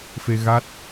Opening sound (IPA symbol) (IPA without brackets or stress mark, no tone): f